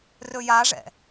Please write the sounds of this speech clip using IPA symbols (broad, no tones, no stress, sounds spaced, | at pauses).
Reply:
r ɵ j a ʐ ɛ̰